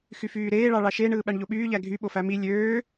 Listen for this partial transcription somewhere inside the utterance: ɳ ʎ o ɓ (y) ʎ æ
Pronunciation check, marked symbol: incorrect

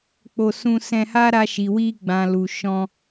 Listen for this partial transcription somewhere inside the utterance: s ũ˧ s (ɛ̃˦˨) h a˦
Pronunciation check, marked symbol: incorrect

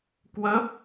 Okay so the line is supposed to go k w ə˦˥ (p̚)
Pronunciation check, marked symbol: correct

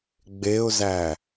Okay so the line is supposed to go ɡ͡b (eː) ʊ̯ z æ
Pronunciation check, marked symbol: incorrect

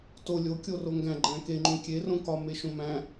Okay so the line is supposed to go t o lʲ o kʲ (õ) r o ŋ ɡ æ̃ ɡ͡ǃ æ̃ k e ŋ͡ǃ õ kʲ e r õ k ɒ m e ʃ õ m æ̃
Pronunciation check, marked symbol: incorrect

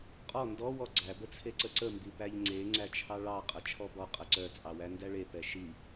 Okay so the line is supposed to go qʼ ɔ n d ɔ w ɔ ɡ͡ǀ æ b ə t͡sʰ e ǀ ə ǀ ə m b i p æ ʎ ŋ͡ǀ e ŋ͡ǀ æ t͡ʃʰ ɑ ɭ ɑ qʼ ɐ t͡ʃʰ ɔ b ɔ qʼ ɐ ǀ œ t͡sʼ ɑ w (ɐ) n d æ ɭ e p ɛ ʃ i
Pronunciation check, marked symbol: incorrect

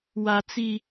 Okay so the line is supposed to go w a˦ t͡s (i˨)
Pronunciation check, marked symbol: incorrect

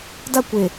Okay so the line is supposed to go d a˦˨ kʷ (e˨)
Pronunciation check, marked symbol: correct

